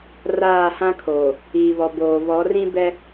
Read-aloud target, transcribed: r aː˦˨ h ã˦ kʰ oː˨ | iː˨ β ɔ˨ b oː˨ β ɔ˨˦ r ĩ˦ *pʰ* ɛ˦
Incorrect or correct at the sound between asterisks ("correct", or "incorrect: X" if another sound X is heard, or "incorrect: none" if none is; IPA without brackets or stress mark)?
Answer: incorrect: b